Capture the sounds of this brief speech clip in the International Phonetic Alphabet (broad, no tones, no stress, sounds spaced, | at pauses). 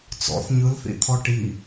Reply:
t͡s ɔ̰ θ ɲ ɯ l θ ḭ t̪ʰ ɔ ʈ i